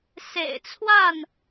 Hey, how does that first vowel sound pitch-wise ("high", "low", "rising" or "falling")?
low